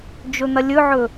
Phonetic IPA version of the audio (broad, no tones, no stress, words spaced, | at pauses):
d͡ʒɵn̪ɐlʲɵʕɵ